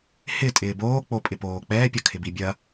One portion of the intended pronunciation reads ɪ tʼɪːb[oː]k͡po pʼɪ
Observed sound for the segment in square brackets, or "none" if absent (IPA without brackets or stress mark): oː